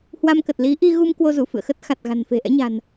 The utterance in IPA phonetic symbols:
h w a˧ m k ə˨˩ t̚ l i˨˦ ʔ i˧ ɣ u˧ m k w o˧ z u˧˩ f ɨ̰˧˨ ə̯ x ə˦˥ t̚ x a˨˩ t̚ ɣ a̤˨˩ n f e̤˨˩ ʔ ɛ̰˧˥ ɲ a̤˨˩ n

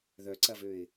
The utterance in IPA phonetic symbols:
ð œ ǀ ɐ v ø ɪ̯

